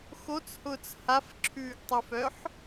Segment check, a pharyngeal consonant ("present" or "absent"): present